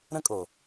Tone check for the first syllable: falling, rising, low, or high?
high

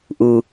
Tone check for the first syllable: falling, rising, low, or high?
low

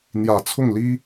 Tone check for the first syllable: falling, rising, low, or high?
low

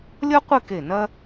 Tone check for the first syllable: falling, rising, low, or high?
high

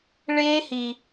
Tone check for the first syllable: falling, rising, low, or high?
high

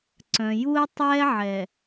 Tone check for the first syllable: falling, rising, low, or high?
low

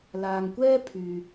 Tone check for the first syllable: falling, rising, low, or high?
low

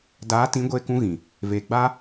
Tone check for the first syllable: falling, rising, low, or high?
rising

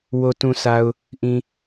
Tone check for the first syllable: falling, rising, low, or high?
low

